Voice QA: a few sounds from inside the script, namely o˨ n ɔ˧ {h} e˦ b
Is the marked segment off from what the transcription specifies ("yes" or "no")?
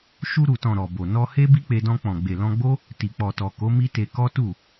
no